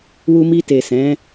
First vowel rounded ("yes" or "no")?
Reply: yes